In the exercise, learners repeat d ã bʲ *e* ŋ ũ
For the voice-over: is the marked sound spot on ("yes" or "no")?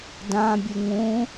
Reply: no